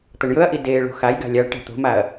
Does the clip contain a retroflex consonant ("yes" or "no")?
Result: yes